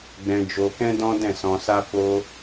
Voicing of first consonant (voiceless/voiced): voiced